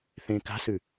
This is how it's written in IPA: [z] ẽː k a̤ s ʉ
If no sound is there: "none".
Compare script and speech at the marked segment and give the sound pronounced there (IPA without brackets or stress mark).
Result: θ